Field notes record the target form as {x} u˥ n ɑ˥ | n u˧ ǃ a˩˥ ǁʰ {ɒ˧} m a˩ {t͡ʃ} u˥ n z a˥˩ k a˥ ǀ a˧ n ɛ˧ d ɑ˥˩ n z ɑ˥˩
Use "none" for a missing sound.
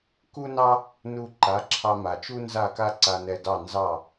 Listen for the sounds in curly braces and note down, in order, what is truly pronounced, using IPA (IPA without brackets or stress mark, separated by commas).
k, ɑ˧, t͡ʃ